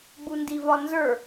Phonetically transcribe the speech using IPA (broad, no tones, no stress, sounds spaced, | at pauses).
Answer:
ɡ͡b u n d i v ɒ n z ə˞